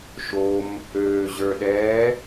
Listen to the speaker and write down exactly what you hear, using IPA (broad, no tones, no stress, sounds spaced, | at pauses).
ʃ o m | øː ʑ ə˞ ɗ ɛː